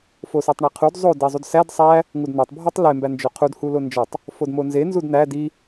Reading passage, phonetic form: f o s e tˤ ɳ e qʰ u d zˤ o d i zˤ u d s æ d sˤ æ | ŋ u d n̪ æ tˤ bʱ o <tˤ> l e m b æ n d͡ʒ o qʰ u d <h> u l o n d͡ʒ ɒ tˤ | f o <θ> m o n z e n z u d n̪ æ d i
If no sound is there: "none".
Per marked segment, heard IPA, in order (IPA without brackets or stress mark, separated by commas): tˤ, h, d